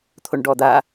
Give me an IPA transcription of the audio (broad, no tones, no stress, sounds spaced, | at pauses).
t̪ʰ o ɳ ɖ ɔ d̪ a